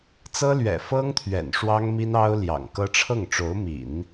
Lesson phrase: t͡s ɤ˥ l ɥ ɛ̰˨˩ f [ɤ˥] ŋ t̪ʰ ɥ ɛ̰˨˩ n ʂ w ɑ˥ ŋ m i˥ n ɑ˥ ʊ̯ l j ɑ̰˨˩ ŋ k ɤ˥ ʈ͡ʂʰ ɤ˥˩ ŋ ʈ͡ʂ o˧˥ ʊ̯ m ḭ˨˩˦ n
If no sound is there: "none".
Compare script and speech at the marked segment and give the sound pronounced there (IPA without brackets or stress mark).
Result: ɤ˥